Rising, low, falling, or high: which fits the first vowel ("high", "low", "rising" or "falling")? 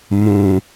low